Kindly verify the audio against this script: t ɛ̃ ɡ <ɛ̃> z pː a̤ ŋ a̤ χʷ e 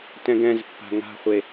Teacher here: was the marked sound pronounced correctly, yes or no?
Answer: yes